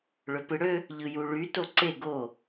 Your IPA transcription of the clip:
ɭ ø p ɯ ɽ ø | ʎ ɯ j u ɭ y t o ǀ e ɡ o

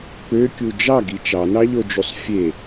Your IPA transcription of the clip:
p ø kʲ u d͡ʒ ɑ ɡ i t͡ʃ ɑ n ɑ ʎ o d͡ʒ u sˤ fʲ e

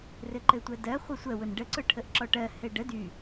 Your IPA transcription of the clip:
r ɘ ǃ ɘ tʷ ɜ d ɜ χʷ ə sʷ ɜ w ʊ n ɖ ə ǀ ʊ ʈʰ ə ʔ ǁ ɔ ʈ ɜ h ɘ ɖ ə d y

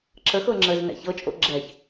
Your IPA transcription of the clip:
ǁ ə x ɤ ŋ͡ǁ ə z n ɛ̰ ç ɤ t͡ʃʼ o̰ ɡ͡ǁ ɛ ç

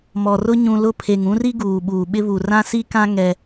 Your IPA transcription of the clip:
m ɔ˨ r ʊ˦ ɲ ũ˨ l ʊ˦˨ pʰ e˨ ŋ ũ˦ r i˦ ɡ uː˨ ɓ uː˨ ɓ ɪ˦ β u˨ r ã˦ s i˦ k ã˦ ŋ ɛ˦

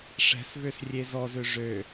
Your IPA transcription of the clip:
ʂ ɛ̤ s v ø s rʲ e z ɔ z ø ʐ ø

